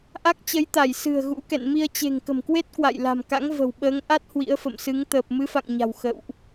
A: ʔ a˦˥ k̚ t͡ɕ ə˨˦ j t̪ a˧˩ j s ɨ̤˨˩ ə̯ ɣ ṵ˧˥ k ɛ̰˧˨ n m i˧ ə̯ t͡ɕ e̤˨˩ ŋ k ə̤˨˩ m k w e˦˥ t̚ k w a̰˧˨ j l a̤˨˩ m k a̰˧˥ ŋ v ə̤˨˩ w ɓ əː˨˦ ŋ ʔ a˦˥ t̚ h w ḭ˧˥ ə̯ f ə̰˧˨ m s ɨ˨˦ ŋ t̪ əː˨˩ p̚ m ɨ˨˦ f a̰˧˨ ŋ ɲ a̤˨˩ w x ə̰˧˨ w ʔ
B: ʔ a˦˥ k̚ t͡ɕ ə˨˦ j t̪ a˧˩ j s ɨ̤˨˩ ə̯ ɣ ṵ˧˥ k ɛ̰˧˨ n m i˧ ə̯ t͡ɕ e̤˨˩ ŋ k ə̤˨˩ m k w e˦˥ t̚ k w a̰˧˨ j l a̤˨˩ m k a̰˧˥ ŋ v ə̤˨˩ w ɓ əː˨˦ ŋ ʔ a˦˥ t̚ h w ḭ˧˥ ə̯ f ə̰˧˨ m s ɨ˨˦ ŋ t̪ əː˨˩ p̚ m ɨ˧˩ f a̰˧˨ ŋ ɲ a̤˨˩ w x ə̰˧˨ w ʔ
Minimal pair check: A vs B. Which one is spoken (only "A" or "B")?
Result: A